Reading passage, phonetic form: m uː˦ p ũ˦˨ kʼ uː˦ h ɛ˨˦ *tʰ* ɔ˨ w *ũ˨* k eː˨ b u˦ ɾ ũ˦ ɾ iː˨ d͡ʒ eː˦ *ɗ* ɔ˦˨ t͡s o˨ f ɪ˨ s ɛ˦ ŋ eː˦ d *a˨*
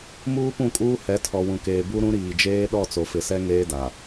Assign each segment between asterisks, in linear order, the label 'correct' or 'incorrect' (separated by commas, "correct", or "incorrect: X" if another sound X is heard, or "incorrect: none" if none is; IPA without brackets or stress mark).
correct, correct, correct, correct